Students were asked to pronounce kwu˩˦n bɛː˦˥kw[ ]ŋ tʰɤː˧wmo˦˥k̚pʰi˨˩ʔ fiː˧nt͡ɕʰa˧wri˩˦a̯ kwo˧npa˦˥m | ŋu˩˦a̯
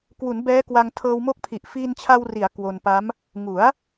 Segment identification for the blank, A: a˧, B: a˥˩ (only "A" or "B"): A